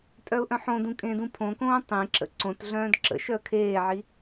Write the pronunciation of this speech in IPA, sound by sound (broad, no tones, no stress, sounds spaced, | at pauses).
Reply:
tʼ œ ʊ̯ ʔ œ̃ ħ õ d ũ kʼ ẽ d ũ pʰ õ k õː tˤ ẽ ǁ ə̰ ǀ õ t ɮ œ̃ː d ǁ ə̰ ʃ œ ə̯ kʰ eː ʕ i